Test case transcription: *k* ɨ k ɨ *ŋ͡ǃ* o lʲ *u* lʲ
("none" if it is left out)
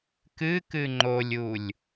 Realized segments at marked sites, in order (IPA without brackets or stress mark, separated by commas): k, ŋ͡ǃ, u